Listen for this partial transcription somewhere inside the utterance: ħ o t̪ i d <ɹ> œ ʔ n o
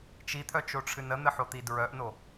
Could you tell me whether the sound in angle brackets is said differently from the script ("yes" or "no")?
no